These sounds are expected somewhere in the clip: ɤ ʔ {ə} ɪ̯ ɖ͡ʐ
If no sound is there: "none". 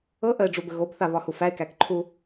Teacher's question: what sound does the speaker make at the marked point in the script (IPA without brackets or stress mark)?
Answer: ə